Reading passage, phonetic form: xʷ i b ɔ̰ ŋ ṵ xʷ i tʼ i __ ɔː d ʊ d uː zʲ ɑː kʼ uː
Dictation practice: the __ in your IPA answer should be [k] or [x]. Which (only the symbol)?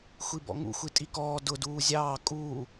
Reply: k